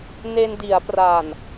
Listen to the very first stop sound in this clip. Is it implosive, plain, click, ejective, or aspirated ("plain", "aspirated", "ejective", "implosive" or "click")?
plain